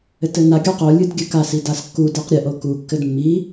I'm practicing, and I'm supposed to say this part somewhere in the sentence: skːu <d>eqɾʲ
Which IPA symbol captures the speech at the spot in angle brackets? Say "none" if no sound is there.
d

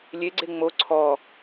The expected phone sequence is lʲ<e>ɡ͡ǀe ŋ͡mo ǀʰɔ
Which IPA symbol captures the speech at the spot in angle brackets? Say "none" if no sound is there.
e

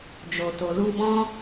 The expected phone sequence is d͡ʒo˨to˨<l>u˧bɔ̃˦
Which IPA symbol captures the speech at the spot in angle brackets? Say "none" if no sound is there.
l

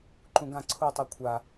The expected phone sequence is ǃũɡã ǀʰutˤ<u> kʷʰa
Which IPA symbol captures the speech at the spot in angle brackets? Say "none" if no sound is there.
u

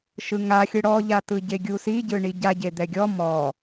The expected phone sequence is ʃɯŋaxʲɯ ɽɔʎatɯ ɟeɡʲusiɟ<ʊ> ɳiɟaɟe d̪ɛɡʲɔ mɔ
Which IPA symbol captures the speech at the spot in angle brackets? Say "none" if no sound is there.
ɯ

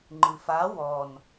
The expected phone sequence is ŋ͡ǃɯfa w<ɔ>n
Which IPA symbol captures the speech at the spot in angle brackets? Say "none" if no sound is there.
ɔ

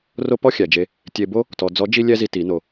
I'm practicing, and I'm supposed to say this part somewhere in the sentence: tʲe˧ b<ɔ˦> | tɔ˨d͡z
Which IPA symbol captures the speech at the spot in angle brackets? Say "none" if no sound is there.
o˦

